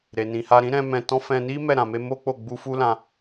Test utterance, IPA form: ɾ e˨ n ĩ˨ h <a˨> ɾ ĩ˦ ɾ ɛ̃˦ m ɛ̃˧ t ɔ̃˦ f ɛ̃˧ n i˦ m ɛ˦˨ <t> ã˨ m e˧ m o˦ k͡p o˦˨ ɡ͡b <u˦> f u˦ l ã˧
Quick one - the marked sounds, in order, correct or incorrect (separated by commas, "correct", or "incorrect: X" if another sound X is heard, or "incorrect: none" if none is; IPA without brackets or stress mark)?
incorrect: a˧, incorrect: ɾ, incorrect: u˧